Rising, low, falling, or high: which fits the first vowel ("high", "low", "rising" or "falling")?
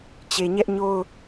low